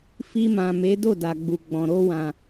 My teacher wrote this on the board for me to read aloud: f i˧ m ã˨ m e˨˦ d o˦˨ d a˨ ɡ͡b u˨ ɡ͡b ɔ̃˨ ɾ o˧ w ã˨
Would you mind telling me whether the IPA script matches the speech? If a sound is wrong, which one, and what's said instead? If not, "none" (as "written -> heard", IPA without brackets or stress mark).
none